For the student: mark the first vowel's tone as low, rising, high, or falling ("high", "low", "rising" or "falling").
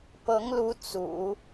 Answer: rising